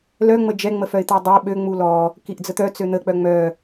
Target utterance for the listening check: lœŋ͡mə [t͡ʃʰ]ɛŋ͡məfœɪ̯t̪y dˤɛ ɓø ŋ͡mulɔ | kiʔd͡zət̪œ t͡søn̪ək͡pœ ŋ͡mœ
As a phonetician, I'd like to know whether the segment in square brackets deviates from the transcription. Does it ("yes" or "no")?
yes